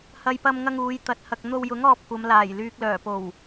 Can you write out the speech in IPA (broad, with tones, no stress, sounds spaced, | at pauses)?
h ɐ˥ j p ɐ˥ m ŋ ɐ˥ ŋ uː˨˧ j t̪ ɐ˨˥ t̚ h ɐ˨ k̚ n̪ o˧ w j ʊ˨˥ ŋ ɔː˧ p̚ kʷ ɐ˨˧ m l aː˨˩ j l yː˨ k̚ l œː˨˩ p o˨˩ w